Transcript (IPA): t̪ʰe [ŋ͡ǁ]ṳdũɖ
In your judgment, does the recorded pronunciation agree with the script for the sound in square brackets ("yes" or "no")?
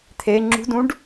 yes